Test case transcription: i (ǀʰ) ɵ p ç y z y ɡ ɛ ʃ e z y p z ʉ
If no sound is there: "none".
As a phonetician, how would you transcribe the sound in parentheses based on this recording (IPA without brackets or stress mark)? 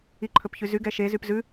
ǃʰ